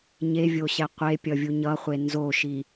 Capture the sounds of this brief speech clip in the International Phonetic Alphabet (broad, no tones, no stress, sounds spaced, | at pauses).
ɲ e vʲ o ɕ ɛ qʷ e pʲ ʌ vʲ u ɲ ʌ χʷ e n z o ʃ i